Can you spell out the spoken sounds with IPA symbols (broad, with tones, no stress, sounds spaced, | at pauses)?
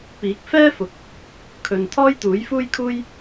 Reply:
p iː˨˥ k̚ f ɛː˥ f ʊ˨˥ k̚ | kʰ ɵ˨ n t̪ʰ ɔː˥ j t̪ uː˨˥ j f uː˥ j kʰ uː˥ j